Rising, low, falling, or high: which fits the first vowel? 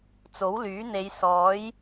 rising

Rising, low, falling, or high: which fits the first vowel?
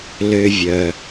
low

